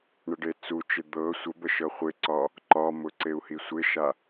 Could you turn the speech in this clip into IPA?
ɳ ə ɖ e t͡s u t͡ʃ ɪ d̪ ɤ sʷ ə b ə ʃ ɤ χʷ ɪ ǀ ɒ | ǃ ɒ m ʊ ǀ e u̯ h i sʷ ɪ ʃ a

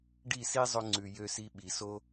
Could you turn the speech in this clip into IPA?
ɖ i˦˨ s i˦ zˤ ɵ˧ ŋ͡ǀ ʉ˨ j ø˧ s i˧ ɓ i˨ s o˦

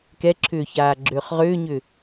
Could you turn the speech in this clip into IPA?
k ɛ ǁʰ ʏː ç aː ɡ͡ǁ ʏː χ ʁ ʏː ɲ ʏ

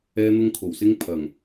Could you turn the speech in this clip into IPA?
ɛː˧ n̪ ʊ˧ ŋ kʰ o˨˩ w s ɪ˧ ŋ pʰ ɐ˨˩ ŋ

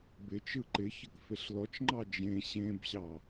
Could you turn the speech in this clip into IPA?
b ɪ t͡ʃ ɯ ǃ ɪ ç ə k f e ɬ l ɔ t͡ʃ ŋ͡ǃ ɑ d͡ʒ ẽ ɕ ẽ b ɕ ɑ

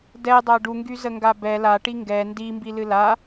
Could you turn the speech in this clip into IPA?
d ɛ dˤ a ɖ u ŋ ɡ y z ə ŋ ɡ a b ɛ l a ʈ i ŋ ɡ ɛ n d i m b i l ɨ l a

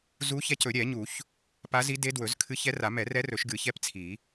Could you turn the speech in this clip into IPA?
z u˧˥ ç ɛ˧˥ c ɵ˨˩˦ ɾʲ ɛ˨˩˦ ɲ u˨˩˦ ç | p a˧˥ z i˧˥ d e˧˥ d w ɵ˨˩˦ z kʰ ɨ˧˥ ç ɛ˧˥ r a˨˩˦ m ɛ˨˩˦ r ɛ˧˥ r ɵ˨˩˦ ʃ ɡ ɨ˨˩˦ ç ɛ˧˥ p t͡sʰ i˨˩˦

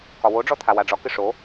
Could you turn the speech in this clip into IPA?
k ɒ w o ɖ͡ʐ ɔ t̪ʰ a w a ɖ͡ʐ ɒ k ɨ ʂ o

